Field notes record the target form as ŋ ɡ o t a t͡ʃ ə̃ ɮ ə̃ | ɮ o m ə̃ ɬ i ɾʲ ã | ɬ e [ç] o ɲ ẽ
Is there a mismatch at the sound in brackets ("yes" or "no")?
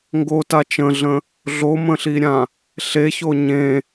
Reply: no